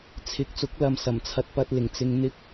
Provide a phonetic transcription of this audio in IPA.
t͡sʰ ɪ˨˥ k̚ t͡s ʊ˨˥ k̚ l ɐ˨ m s ɐ˨˩ m t͡sʰ ɐ˧ t̚ p ɐ˧ t̚ l ɪ˨˩ ŋ t͡s ɪ˧ ŋ n̪ ɪ˥ k̚

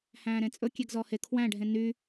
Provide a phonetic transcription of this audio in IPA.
h æ̃ː ɾ ẽ t͡sʼ ɵ kʲ e ɡ z ɔ h e kʰ w æ̃ ɖʱ ẽ n y

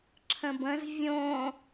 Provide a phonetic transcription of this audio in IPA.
ǁʰ ə̃ b ə̃ z vʲ õ

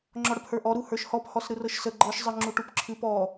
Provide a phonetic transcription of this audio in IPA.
ŋ͡ǁ ɔ ɽ ə p h ə˞ ʔ ɔ ɾ u h ə˞ ʃ h ɔ p h ɔ s ɾ ɯ r ɤ ʃ s ə ɡ͡ǃ ɤ ʃ zˤ ɯ ŋ͡ǁ u ʈ u p ǁʰ ɨ p ɔ

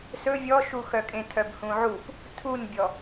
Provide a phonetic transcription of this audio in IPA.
s ɵ vʲ ɔ ʃ u x œ kʼ ẽ tʰ œ b h ũ ʕ u p | tʰ u n bʲ ɔ

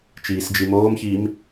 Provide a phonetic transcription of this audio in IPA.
t͡ʃ iː s d͡ʒ i m oː m ç iː m

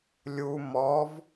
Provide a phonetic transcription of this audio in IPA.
lʲ u m ɔ v

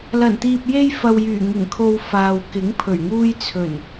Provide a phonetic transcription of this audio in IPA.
l ɐ˨˩ n t̪ iː˨ p̚ j e˧ j f ɐ˨ w j yː˨˩ ŋ ɪ˨˩ ŋ kʰ o˨ w f aː˨ w k ɪ˨˥ ŋ pʰ ɵ˨˩ ɥ ŋ uː˧ j t͡sʰ ɵ˨˩ n

